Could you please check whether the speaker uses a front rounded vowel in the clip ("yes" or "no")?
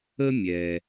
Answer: no